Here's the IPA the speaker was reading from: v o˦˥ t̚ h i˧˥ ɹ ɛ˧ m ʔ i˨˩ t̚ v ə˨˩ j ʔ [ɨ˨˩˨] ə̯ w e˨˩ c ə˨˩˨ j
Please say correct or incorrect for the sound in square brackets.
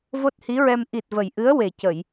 incorrect: ɨ˧˥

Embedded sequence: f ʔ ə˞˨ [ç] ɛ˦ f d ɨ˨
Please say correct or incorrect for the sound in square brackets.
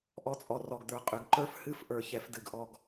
correct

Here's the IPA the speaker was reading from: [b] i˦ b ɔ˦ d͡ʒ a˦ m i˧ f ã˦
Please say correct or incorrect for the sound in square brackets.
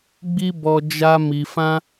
incorrect: ɡ͡b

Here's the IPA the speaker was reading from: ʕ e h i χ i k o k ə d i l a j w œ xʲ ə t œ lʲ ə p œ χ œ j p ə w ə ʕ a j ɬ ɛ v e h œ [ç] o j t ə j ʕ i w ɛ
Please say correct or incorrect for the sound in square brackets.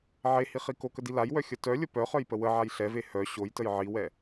incorrect: ɕ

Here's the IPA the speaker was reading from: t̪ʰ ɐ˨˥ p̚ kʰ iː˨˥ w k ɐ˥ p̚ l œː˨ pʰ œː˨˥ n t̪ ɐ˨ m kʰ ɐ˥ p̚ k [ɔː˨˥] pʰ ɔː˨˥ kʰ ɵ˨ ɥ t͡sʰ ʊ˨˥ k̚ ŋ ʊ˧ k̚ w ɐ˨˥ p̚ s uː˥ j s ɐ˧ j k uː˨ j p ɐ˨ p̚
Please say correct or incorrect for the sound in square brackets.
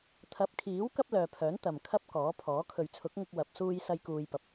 correct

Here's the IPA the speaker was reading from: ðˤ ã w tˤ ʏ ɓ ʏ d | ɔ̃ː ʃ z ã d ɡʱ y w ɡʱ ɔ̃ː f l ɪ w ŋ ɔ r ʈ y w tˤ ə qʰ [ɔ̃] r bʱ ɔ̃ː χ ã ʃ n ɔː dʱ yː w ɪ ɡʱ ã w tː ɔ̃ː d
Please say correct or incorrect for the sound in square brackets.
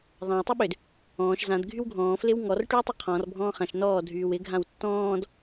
correct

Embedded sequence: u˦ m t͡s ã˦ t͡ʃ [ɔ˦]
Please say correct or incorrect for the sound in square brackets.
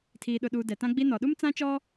correct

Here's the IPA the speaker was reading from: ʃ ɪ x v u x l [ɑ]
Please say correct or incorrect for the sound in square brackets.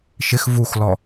incorrect: ɔ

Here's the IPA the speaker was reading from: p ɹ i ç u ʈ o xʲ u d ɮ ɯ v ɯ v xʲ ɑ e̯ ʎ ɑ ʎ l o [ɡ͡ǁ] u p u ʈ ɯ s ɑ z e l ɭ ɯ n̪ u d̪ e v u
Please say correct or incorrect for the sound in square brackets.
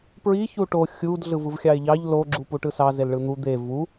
correct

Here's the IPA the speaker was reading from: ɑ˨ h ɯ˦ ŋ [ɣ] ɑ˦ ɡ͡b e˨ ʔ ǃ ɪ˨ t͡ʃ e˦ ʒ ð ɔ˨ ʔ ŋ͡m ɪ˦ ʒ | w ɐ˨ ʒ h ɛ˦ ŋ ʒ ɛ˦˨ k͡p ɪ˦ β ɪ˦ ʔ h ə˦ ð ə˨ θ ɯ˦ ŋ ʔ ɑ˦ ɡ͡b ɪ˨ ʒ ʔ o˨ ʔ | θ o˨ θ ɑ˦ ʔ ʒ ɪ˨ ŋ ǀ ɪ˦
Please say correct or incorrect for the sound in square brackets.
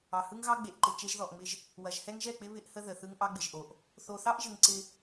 correct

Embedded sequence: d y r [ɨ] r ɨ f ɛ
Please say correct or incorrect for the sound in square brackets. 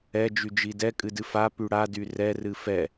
incorrect: ɛ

